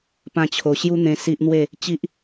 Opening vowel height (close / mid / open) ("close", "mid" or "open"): open